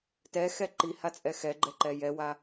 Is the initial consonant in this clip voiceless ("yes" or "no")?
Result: yes